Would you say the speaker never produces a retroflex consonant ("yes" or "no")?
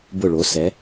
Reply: no